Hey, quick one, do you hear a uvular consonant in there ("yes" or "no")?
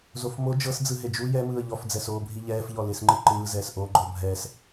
no